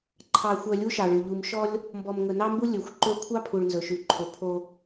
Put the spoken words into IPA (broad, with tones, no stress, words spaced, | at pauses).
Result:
ǃʰɑ˨xʷœ˨ lʲu˦ʃɑ˨ɭʉ˨ ʎu˨mʃɔ˦lʲ | mbɔ˨mŋɵ˨nɑ˦mbu˦ lʲɵ˨xʷ ǃɵ˦ kʷʰɑ˦pʰu˨ɭ nzɵ˨ʃʉ˨ǃʰɵ˨ pʰo˦